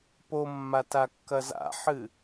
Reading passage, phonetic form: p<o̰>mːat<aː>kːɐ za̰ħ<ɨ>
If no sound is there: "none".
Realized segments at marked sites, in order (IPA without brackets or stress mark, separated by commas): o, a, ɨ